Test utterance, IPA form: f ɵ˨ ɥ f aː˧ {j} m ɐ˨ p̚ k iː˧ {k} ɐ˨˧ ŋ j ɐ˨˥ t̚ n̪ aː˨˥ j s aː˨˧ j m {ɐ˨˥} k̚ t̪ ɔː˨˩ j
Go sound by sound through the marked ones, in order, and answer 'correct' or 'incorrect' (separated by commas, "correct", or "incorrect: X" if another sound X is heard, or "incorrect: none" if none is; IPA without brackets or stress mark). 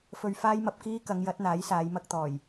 correct, correct, incorrect: ɐ˧